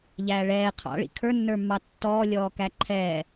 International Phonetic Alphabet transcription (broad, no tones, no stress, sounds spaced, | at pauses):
ʎ æː ɭ ɛː qʰ ɑ̰ ɭ ḭ kʰ ə˞ nː ə˞ mː ɑ tː ɔː lʲ ɔː k æ ǃʰ ɛː